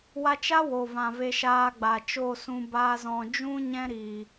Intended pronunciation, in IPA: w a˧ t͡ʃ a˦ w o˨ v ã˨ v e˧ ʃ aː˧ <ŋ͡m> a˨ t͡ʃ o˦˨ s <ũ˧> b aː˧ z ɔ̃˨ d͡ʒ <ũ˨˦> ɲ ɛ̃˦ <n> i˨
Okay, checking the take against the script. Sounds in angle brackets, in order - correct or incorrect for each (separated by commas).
incorrect, correct, incorrect, incorrect